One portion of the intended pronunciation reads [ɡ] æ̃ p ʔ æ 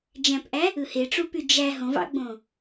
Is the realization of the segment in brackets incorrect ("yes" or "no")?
yes